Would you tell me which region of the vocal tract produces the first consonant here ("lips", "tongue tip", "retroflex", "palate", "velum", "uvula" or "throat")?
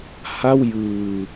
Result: throat